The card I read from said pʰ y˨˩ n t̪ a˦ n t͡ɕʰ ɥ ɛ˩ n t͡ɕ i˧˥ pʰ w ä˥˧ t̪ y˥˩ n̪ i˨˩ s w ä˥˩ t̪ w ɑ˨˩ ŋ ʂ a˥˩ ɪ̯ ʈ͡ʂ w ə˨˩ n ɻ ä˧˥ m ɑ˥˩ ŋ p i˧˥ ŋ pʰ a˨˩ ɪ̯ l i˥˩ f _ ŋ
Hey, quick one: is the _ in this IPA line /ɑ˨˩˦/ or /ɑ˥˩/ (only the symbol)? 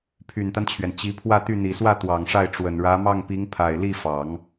ɑ˨˩˦